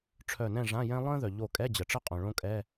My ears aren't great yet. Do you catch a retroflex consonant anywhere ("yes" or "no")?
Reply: yes